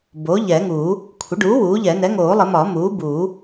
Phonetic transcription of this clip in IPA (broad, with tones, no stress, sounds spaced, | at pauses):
b oː˩˥ ʎ ɛː˨˩˦ ŋ uː˨˩˦ | kʷʰ ə˩˥ ɖ uː˩˥ w uː˩˥ ʎ ɛ˨˩˦ n ɛ˩˥ ŋ oː˨˩˦ lˠ ə˨˩˦ m ɒː˨˩˦ m uː˩˥ b u˨˩˦